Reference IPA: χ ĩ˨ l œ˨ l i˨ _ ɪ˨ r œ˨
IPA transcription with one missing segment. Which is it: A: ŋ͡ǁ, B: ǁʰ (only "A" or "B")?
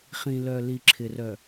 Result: B